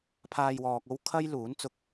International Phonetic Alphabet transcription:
pʰaː˧jwɔː˨k̚o˥w kʰɐ˥j luː˨˥nt͡sʊ˧k̚

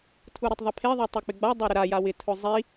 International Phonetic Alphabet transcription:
tʰuɾotˤðˤɛpʰe ðˤotˤek͡pɪɡ͡ba dˤoɾʊɾa jawɪ tʰʊzˤi

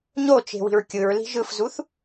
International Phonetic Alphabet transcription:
ɲot͡ʃe̤ wi̤ɹkʲɯɹli̤ ʒɯfzuθ

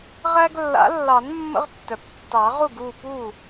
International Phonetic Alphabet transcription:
ʁæ˦ɡlːa̰˨˩˦lːɑ˨˩˦n mːə̰˦ʁtːœ˩ptːɑ˨˩˦ʁu˥˩ɡ u˥˩pu˥˩

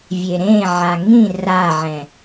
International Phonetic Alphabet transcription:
vʲeɾẽʕa ŋĩ raʕɛ̃

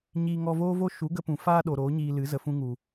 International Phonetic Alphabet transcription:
ɲiː˧ ŋɔ˧voː˦vo˦ ʃu˨˦ɡə˧pũ˨ faː˦ɗo˨ ɾoː˨˦ɲiː˧lɨ˨˦ zə˨fũ˧ŋu˨

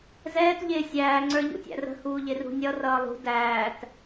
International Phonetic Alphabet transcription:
zɛːt ʎɪːsʲæː ŋ͡ǀə˞ʎṵtʲæ̰rə̤ huːʎɪrṳnʲʌ rʌːlˠṳ dæːt

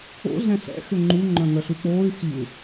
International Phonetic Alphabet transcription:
o̰ ɮɛ̃ɬɛ̰ xʏŋ͡ǃu ŋ͡ǃœ̃ŋœɬuk͡poːy̯ xiu̯

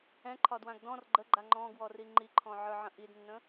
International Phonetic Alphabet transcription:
ɛ̃ǃʰɒdwãɡ dɔ̃r ɡ͡ǃəɡ͡ǃa ŋ͡ǃɔ̃ɡwɔri ŋ͡ǃiǃʰɔ̃ʕə˞ʕə̃ ʔidnːə̃

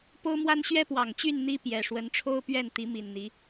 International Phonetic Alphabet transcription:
po˦ʊ̯mwa˦n ɕɥɛ˦pwɑ˨˩ŋt͡ɕy˥˨n n̪i˦pjɛ˨˩ ʂwə˨˦nʈ͡ʂʰo˦ʊ̯pɥɛ˥˨n t̪i˨˦mi˨˩nn̪i˨˦

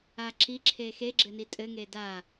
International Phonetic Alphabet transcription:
aǁi ǁʰexe ɡ͡ǁɘnitʼɘ ŋeda

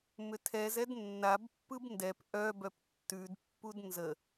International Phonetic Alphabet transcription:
mʏtʰɛzɛd nːabpːɯb ndɛp ʔœbœp tːʉdpːud nzə

